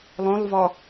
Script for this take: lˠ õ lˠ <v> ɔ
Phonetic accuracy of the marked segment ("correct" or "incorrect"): correct